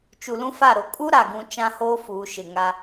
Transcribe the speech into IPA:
t͡ʃu˨lũ˦fa˦˨ɾo˨ kʼu˦ ɾa˨ɡũ˦ t͡ʃã˦hoː˦ fuː˨˦ ʃɪ˨ŋa˦

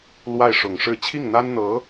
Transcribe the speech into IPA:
lwa˥˩ɪ̯ʂʊ˨˩ŋʂɻ̩˥˧ t͡ɕʰi˥˩ŋn̪a˥nn̪ɤ˧˥

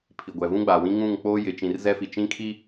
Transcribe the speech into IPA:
pʰi˨ɡʷɛ˨ vũ˦ɡ͡ba˨wĩ˦ ŋũ˦˨ŋ k͡poː˦jɪ˨˦ t͡ʃĩ˨r zɛ˦fi˨ t͡ʃĩ˦kʰi˦

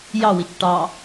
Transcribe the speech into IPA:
jɑwit͡ʃ ʈɑ

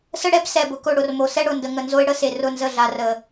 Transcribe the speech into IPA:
sə˦ɽɛ˦b sɛ˨bʊ˨kʊ˦˨ ɽʊ˨rmo˨ sɛ˦ɽʊ˨ndə˨ ŋə˨nzo˦ɪ̯ ɽə˦se˨rʊ˦˨ nzə˦˨ɮa˨rə˨

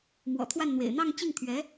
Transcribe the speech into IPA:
mwɔ̰˨˩t̪ʰwa˥˩nn̪wḛ˨˩ɪ̯ n̪ɑ˥˧ŋt͡ɕi˥˩ŋt̪ʰɥɛ˧˥

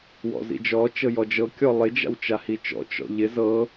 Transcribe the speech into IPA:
wɔ̰zḭd͡ʒɔ t͡ʃɤjɔd͡ʒɤ kʲɔlˠɪ d͡ʒa̰wt͡ʃahit͡ʃɔ̰ t͡ʃɔ̰ʎɪ zɤ

